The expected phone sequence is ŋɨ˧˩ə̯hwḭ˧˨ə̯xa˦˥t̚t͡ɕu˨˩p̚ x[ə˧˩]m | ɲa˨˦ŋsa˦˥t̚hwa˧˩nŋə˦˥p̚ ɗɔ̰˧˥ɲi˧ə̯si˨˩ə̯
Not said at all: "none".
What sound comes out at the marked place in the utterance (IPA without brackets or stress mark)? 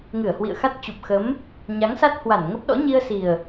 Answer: ə˨˦